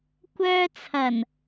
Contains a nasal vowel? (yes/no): no